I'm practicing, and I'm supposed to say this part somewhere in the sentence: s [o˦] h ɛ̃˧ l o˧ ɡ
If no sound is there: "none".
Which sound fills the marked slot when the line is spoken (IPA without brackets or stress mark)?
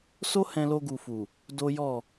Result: o˦